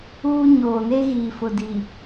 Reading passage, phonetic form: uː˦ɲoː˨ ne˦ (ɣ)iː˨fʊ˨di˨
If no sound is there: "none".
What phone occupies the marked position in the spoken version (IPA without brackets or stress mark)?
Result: ɣ